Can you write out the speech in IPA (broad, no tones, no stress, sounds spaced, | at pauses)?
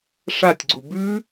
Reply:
ʂ a tʲ ɡ͡ǀ u b ʉ